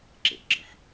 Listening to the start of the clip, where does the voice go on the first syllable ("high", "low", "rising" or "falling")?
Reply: low